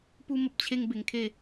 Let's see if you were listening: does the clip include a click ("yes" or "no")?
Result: no